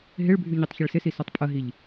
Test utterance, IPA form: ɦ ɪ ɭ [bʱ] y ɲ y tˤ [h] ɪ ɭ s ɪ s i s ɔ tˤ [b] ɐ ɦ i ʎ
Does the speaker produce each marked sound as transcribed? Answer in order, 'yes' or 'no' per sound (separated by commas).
yes, no, no